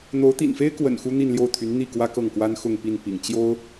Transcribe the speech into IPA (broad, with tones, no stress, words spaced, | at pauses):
n̪o˧˥ʊ̯t̪ḭ˨˩nfe˥ɪ̯kwə̰˨˩n xu˥n̪i˥˧nljo˥˩ʊ̯t̪ʰy˧˥n n̪i˥˩ kwä˥kɤ˥˩ŋkwa˥n xʊ˥˧ŋpi˥˩n pḭ˨˩ŋ t͡ɕjo˥ʊ̯